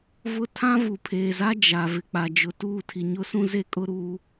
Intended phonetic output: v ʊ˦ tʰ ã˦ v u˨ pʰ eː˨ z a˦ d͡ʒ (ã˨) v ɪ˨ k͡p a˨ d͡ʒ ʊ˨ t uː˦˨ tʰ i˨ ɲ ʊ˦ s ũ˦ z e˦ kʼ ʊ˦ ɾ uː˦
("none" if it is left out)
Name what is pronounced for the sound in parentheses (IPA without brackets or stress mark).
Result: a˨